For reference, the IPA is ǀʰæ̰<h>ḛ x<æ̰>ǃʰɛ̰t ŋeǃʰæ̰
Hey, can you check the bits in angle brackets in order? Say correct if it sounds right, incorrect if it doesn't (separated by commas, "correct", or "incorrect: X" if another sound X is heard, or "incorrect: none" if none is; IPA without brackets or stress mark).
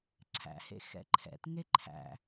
correct, incorrect: ɛ̰